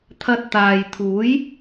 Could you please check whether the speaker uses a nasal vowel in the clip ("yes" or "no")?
no